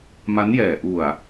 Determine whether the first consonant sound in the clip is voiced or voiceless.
voiced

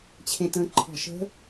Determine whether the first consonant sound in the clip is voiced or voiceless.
voiceless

